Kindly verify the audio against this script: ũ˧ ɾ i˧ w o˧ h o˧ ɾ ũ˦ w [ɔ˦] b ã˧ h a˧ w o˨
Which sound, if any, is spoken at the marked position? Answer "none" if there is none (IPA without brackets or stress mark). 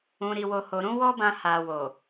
ɔ˦